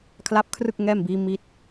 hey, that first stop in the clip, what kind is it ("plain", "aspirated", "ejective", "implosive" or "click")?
aspirated